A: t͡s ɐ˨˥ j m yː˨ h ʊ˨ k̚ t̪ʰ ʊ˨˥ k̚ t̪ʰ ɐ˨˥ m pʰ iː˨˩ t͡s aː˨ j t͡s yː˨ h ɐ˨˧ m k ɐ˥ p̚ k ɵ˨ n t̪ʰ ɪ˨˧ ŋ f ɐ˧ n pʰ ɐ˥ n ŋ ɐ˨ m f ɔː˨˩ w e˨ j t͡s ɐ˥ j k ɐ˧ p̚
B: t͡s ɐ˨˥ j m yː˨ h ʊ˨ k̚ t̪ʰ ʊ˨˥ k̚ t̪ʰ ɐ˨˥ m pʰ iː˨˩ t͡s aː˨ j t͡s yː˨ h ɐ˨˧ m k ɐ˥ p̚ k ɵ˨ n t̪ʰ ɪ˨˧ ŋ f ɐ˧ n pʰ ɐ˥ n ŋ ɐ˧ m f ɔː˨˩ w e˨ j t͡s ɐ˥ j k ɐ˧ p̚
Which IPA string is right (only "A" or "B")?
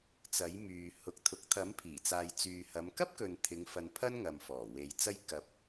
A